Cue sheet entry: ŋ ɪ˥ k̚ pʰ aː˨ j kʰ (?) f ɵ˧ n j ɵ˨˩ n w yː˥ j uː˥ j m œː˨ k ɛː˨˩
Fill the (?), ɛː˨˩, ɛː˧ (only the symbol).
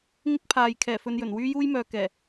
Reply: ɛː˨˩